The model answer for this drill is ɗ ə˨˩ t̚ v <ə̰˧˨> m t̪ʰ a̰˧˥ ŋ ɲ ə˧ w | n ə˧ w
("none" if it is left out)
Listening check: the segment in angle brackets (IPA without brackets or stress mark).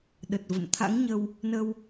ə̰˧˨